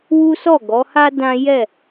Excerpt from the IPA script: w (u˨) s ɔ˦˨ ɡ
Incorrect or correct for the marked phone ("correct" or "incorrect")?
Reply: incorrect